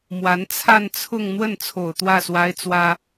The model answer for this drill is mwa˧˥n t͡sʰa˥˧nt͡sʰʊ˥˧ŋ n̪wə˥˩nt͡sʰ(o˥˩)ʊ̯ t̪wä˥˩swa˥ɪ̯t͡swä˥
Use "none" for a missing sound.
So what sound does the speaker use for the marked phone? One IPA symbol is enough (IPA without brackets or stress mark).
o˨˩